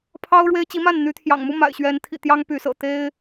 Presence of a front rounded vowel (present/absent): present